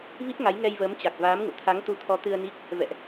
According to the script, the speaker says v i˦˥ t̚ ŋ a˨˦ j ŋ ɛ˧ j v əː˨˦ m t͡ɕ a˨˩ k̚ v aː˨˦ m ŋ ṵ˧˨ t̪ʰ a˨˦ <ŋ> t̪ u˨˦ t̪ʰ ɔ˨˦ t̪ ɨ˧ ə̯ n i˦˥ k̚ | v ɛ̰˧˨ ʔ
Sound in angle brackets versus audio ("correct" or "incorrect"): correct